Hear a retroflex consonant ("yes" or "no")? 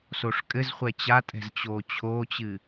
yes